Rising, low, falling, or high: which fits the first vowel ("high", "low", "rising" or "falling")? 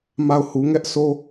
falling